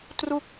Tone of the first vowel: falling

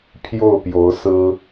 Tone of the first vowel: falling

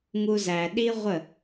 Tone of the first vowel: high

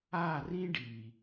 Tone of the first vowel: falling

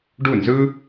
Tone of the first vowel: falling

